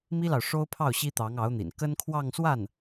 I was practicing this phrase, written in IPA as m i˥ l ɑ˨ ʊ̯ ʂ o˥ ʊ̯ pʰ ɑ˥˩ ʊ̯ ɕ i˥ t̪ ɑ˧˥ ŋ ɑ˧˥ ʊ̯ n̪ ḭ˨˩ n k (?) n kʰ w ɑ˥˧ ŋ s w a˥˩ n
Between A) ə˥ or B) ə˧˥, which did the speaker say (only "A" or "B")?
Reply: A